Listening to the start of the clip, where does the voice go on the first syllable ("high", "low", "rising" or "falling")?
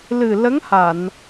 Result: low